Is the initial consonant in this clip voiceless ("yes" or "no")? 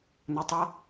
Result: no